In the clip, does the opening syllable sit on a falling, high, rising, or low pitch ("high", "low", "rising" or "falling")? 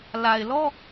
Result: low